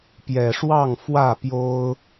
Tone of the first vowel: low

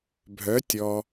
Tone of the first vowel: rising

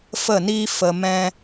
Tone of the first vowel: falling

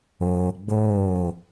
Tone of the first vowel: low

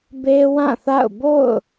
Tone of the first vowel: high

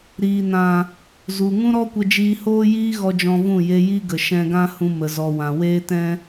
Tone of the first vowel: low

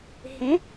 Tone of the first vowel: rising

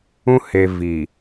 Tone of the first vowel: high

